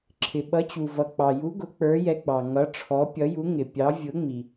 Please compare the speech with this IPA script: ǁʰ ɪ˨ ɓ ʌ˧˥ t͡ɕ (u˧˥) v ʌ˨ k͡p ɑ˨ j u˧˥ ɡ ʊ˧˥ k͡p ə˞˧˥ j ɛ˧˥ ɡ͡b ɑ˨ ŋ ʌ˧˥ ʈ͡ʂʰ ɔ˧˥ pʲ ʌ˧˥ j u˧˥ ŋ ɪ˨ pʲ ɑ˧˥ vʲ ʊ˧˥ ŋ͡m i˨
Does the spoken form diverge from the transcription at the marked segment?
yes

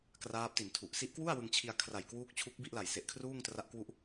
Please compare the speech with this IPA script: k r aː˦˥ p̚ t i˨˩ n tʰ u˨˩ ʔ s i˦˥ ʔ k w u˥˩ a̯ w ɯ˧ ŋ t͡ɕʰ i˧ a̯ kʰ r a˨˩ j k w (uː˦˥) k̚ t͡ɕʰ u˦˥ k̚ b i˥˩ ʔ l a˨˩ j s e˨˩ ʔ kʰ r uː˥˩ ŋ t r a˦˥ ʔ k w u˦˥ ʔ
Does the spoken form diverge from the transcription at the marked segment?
no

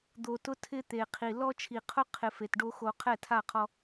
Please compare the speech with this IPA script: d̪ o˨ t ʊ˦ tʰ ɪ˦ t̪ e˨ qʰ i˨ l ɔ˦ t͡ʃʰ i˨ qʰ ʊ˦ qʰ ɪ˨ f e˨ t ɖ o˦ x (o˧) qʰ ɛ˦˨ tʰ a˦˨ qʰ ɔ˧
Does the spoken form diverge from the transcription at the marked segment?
no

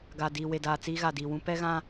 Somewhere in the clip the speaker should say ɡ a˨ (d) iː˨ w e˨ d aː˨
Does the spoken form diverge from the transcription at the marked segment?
no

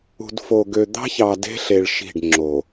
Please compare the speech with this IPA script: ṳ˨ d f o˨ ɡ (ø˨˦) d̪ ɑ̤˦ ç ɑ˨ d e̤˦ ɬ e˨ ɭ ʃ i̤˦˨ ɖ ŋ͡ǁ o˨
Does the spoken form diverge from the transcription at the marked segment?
yes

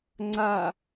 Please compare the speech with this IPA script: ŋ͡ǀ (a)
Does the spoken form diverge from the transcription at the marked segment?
no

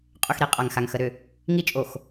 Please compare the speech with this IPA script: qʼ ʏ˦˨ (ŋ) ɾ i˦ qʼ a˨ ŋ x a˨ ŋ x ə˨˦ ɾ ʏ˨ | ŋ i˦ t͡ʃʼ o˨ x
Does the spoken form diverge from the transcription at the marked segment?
yes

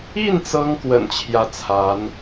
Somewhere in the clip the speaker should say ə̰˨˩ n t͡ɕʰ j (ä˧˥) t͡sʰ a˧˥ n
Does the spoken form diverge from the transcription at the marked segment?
yes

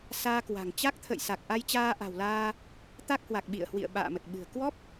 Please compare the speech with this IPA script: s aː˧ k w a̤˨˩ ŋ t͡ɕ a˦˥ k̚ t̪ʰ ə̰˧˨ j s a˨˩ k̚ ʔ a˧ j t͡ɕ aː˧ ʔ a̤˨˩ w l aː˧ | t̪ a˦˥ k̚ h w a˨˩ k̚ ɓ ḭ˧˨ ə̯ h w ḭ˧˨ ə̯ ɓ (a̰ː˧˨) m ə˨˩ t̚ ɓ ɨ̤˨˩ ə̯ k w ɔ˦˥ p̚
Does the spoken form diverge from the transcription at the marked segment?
no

